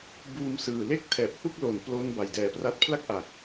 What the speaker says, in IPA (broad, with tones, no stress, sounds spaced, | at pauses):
b uː˧ m s ɯː˨˩ l e˥˩ k̚ tʰ ɛː˨˩ p̚ h u˥˩ k̚ l o˩˦ n p l o˦˥ n b a˨˩ j d ɛː˨˩ p r a˦˥ t̚ pʰ l a˥˩ k̚ ʔ a˨˩ k̚